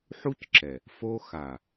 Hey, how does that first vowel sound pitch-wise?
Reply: high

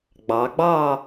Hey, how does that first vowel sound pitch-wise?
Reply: rising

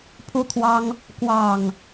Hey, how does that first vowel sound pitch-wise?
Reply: high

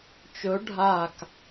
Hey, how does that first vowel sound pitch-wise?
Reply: rising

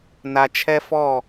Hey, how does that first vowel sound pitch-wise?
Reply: low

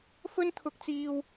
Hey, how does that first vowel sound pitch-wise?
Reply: high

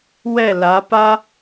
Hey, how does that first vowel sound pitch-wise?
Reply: falling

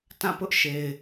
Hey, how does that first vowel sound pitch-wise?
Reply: falling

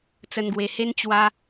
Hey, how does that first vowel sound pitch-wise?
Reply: low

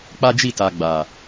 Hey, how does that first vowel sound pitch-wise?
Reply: high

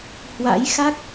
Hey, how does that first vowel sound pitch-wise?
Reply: rising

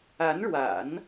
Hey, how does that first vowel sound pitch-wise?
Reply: rising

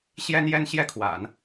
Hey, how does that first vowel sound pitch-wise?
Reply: high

